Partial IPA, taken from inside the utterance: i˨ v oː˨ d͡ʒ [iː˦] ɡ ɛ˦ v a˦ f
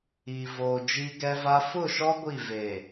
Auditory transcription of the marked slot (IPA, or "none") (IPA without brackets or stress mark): i˦